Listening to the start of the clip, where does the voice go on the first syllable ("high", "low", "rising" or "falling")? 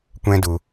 high